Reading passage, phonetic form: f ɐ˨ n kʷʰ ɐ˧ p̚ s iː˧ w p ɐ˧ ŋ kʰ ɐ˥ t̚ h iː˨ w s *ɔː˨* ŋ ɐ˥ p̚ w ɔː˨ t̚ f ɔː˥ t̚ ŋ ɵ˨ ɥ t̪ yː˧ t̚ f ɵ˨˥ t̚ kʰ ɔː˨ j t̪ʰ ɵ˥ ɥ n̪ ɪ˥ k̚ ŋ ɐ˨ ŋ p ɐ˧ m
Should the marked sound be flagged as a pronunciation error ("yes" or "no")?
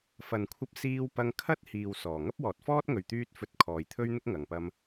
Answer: yes